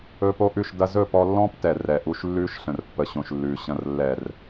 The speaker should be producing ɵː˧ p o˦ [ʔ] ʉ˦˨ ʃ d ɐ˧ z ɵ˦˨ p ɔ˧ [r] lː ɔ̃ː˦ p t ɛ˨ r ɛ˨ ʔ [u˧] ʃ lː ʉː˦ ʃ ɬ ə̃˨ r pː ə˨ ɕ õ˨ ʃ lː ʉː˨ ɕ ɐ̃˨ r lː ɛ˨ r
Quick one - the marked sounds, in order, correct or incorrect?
correct, incorrect: none, correct

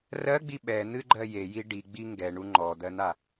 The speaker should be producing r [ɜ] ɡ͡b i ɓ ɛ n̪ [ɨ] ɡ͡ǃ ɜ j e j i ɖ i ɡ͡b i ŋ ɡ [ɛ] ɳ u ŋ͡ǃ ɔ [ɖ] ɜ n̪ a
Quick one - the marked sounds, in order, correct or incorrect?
correct, correct, correct, incorrect: d̪

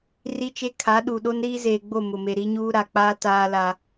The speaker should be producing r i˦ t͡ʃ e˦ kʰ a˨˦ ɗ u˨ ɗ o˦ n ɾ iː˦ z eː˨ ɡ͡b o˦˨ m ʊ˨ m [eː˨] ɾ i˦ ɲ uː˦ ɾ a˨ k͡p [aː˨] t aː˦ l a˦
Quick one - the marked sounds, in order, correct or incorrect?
incorrect: e˨, incorrect: aː˦

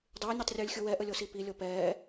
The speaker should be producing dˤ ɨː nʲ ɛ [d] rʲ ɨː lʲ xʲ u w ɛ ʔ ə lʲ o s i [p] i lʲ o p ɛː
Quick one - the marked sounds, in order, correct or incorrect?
incorrect: tˤ, correct

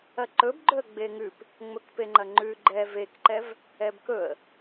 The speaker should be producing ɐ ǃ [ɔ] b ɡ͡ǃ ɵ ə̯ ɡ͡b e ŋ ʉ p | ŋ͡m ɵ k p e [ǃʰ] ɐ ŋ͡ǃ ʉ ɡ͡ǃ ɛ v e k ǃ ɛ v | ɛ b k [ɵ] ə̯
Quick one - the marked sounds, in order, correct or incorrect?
incorrect: ɵ, incorrect: ŋ͡ǃ, correct

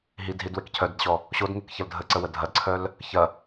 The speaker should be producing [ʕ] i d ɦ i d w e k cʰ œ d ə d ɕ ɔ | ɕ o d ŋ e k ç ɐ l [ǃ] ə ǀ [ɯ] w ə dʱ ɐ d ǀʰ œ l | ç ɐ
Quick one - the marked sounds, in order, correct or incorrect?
incorrect: ɦ, incorrect: dʱ, incorrect: ə

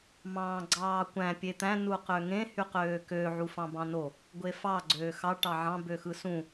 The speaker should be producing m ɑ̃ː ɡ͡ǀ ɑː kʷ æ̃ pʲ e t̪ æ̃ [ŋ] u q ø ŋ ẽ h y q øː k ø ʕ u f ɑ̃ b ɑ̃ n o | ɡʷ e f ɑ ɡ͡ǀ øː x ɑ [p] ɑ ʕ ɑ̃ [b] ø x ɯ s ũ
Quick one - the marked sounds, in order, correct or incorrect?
incorrect: n, incorrect: ʈ, correct

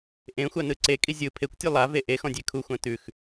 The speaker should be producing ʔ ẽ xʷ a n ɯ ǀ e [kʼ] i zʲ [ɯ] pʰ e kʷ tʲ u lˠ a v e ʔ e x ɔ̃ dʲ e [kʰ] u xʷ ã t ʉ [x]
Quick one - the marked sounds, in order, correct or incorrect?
correct, correct, correct, correct

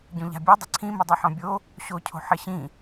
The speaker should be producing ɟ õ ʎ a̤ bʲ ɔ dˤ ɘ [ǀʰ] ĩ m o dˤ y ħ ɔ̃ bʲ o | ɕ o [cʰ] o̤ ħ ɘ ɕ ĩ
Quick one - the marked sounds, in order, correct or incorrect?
correct, correct

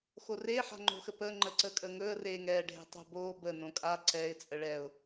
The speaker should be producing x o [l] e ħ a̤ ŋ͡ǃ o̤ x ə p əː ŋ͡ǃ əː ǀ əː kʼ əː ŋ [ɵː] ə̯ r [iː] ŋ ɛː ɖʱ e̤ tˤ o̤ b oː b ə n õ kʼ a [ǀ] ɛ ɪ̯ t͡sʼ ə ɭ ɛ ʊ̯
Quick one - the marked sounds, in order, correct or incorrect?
incorrect: r, correct, incorrect: eː, correct

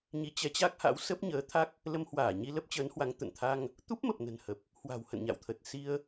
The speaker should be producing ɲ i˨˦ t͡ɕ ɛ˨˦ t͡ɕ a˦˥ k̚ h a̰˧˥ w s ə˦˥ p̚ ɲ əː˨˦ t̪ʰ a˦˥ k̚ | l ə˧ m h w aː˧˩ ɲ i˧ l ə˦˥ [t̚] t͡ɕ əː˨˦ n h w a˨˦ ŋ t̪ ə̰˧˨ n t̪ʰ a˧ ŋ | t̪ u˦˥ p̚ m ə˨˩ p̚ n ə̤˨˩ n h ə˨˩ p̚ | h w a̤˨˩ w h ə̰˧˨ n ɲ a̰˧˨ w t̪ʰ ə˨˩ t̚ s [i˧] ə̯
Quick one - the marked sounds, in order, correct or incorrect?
incorrect: p̚, correct

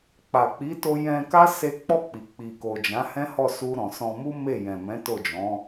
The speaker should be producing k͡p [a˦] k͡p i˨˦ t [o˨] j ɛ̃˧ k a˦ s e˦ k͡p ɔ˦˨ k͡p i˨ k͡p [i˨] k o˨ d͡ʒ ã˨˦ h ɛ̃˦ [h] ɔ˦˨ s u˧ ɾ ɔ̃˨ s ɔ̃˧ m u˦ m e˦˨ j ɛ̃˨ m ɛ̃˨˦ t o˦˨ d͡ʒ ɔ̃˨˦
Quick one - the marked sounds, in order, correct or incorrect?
incorrect: a˨, incorrect: o˧, correct, correct

